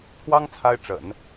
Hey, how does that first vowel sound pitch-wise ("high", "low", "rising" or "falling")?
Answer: high